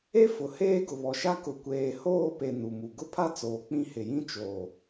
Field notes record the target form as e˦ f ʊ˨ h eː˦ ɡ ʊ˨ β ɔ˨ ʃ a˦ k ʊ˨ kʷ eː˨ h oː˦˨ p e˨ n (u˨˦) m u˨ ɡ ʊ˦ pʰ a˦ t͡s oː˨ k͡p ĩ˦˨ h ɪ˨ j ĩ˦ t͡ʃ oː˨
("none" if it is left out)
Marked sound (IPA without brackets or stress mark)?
u˨